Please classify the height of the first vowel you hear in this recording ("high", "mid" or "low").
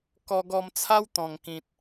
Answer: mid